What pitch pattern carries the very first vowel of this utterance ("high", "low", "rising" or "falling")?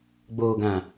low